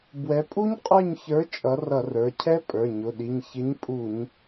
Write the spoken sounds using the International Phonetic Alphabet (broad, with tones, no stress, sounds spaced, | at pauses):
b w ɛ˨˥ pʼ u˦˥ ɲ qʼ ə˞˦˨ ɲ ç ə˞˨˥ t͡ʃʼ ʌ˨˥ r ʌ˧˩˧ r ə˞˩˧˩ cʰ ɛ˦˥ pʼ ə˞˩˧˩ ɲ ʊ˩˧˩ ɗ i˩˧˩ ɲ ç ɪ˨˥ ɲ pʼ u˧˩˧ ɲ